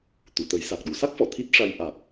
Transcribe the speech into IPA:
t̪ u˨˩˨ t̪ ə˨˩˦ j s a˨˩ k̚ ɗ u˨˩˨ s a˦˥ k̚ f ɔ˨˩˨ t̪ʰ i˦˥ t̚ ʂ a˧ j ʔ a˨˩ k̚

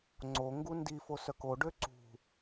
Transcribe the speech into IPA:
ŋ͡ǀ o ŋ ɡ u n d i f o s œ k o ɖ ø ǀ ṳ

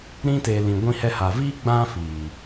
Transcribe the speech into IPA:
ɾ ĩ˧ t e˨ l ĩ˨ ɡʷ ĩ˧ h ɛ˧ h a˨ v iː˦ ɡ͡b ã˦ f iː˨

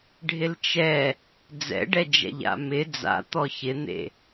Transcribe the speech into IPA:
ɖʱ ɪ l t͡ʃ ɛ | d͡z ɛ̰ ɖ ɛ d͡ʒ ɛ̰ ʎ a̰ m ɪ d͡z a̰ t̪ ɔ ç ɪ n̪ ḛ

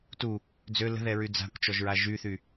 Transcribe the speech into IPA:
t u | d͡z ø l ə̤ ð ɛ ɹ y d͡z a̤ kʷ t͡ʃ ɔ ʒ ɹ a ʒ y θ y

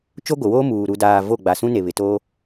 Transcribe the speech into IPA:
t͡ʃ o˦ ɡʷ ɪ˨ w oː˦ m uː˨ ɾ u˨ d aː˨ v o˦˨ ɡ͡b a˨ s ũ˦ n e˨ β ɪ˨ t oː˦

